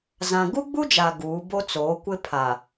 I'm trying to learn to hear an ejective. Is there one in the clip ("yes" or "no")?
no